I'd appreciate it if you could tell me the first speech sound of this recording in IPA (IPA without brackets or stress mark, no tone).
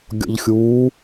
ɡʲ